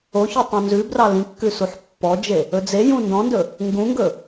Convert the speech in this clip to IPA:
o ç ø tˤ ũ n z ʉ b r ɑ l ĩ kː ʉ s u ħ pː ɔ d͡ʒ e | ɵ d͡z e j ũ n d ɔ̃ n d ɵ | ŋ ɡ ũ ŋ ɡ ɵ

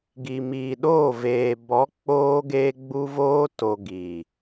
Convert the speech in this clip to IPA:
ɡ i˨ m iː˨ ɗ oː˦˨ v eː˨ b ɔ˨˦ k͡p oː˦ ɡ eː˦ ɡ͡b u˦ v oː˧ t o˨ ɡ i˨

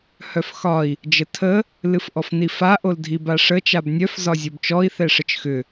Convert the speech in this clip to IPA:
h œ f x ɒ i̯ | d͡ʒ ə tʰ ə | l ɨ f ʔ ɔ f n i f a ʔ o l dʱ i b a ʂ ə t͡ʃ a b nʲ œ f z ɒ zʲ o b t͡ʃ ɔ i̯ θ ɛ ʂ ə t͡ʃ x ʏ

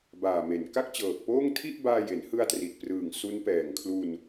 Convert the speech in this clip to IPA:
b aː˨˩ m e˩˦ n k a˥˩ k̚ t͡ɕ ɤː˨˩ k̚ p oː˥˩ ŋ tʰ i˥˩ ʔ b aː˧ j e˩˦ n h ɯ˧ a̯ t r i˨˩ t̚ p r ɯː˨˩ ŋ s u˦˥ n p ɛː˨˩ ŋ kʰ l u˧ n

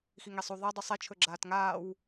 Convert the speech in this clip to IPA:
x i ŋ e sˤ u ðˤ e dˤ u sˤ e t͡ʃʰ ɵ ɡ͡ǁ aː t ŋ aː w

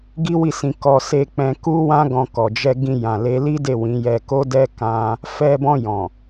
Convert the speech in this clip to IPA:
ɡ i˦ w i˦˨ s ĩ˧ k ɔ˧ s e˧ k͡p ɛ̃˧ k u˦ w ã˦ ɡ ɔ̃˧ k ɔ˨ d͡ʒ ɛ˧ ɡ ĩ˧ j ã˨ l e˨˦ l i˦ d e˦˨ w ĩ˨˦ j ɛ˧ k o˦ d ɛ˦ k ã˦ | f ɛ˧ b ɔ̃˧ j ɔ̃˨

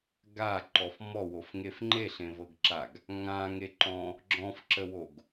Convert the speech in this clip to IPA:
ɡ a ǃ ɔ f m ɔ w o f ŋ e f ŋ͡ǃ e ɬ ẽ v ɤ ɡ ǁ a ɡ | ŋ ã ŋ e ǃ ɔ̃ | ɡ͡ǁ ɔ̃ f ǁ ə w o ɡ

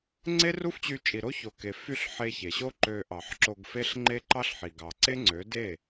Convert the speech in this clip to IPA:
ŋ͡ǀ e˦ r u˦ f t͡ɕ y˧ t͡ʃʼ i˨ ɾ o˦ ç o˨ k e˨ f y˦˨ ɬ ħ e˧ ç e˨ ɕ o˦ ǃ ø˧ ʔ ɑ˨ ħ ǁ o˧ ɡ f e˦ ɬ ŋ͡ǃ e˦ ǃ ɑ˦ ɬ ħ i˨ ɡ ɑ˨ ǀ e˦ ŋ͡ǀ ø˨˦ d e˦˨

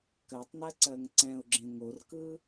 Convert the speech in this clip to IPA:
k ɜ tˤ n ɜ ǀ ɜ ŋ ǀ ɛ̃ ʊ̯ ɡ͡ǁ ẽ ŋ o r k ɯ

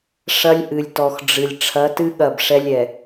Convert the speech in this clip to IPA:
ʂ ɐ˦ lʲ ʔ ɨ˨ lʲ t ɔ˨ x ɖ͡ʐ ɨ˨ lʲ ʈ͡ʂʰ ɐ˨˦ t ɨ˦ ɠ ɐ˦˨ b ʂ ɛ˦ lʲ ɛ˨

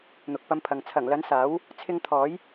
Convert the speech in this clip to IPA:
n̪ ʊ˨ k̚ p ɐ˧ m pʰ ɐ˨ ŋ t͡sʰ ɐ˨˩ ŋ l ɐ˨˥ n s aː˨˥ w | t͡sʰ ɪ˧ ŋ t̪ʰ ɔː˨˥ j

